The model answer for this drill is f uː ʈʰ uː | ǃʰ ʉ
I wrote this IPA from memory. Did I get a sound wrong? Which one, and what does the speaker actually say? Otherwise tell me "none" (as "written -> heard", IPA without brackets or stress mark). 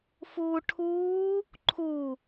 ʉ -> u